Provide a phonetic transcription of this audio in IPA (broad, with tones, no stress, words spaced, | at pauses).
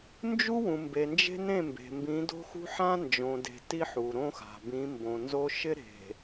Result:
nd͡ʒu˦wũ˨mbe˨ nd͡ʒe̤˦nẽ˦˨mbe̤˨ mbĩ˨˦do̤˦xṳ˦ ħã˦nd͡ʒõ˨de̤˨ ti˦ħu˨ɾõ˦xa̤˨ bĩ˨˦mbõ˨nzo˦ ʃɪ˦ɾe̤˨